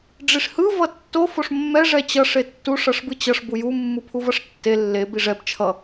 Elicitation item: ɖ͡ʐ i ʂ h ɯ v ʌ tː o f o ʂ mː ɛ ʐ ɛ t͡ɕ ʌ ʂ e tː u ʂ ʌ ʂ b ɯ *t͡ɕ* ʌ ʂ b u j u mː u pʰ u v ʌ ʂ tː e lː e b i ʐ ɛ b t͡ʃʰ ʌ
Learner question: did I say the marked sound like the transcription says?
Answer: yes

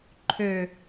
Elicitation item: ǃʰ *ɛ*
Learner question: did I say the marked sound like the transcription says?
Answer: no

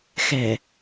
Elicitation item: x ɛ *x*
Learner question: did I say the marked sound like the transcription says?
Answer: no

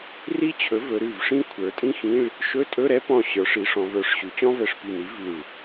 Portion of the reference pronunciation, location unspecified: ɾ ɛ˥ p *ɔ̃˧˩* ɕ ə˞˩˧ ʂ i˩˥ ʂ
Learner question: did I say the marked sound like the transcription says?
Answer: yes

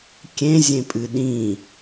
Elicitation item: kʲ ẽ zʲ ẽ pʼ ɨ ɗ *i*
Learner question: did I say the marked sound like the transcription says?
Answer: no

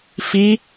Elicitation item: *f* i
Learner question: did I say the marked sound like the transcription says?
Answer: yes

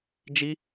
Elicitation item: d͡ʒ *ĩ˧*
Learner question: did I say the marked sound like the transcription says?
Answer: no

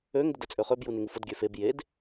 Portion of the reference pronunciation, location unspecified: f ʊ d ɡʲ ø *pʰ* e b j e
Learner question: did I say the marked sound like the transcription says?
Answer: no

